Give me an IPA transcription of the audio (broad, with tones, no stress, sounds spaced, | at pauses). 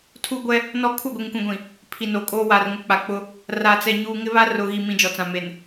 tʰ u˦ ɡʷ ɛ˦ | n ɔ˦ kʰ u˦˨ ɡʷ i˨ ŋ kʷ ĩ˨ ɡʷ ĩ˨ | pʰ i˨ n o˨ kʼ oː˦ w aː˨ r ŋ ʊ˦ k͡p a˨ k͡p ʊ˦ | r a˨ t͡s ɛ˨ ɲ uː˨ ŋ ɪ˦ β a˦ r ʊ˨ ɣ i˨ m ĩ˨ d͡ʒ ɔ˨ t͡s ã˨ m e˨ n